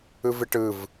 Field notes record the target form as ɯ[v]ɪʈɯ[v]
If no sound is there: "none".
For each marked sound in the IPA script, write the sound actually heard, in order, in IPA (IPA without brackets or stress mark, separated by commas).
v, v